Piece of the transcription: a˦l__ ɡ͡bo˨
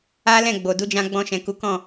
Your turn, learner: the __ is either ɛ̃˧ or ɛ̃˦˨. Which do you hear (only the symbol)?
ɛ̃˦˨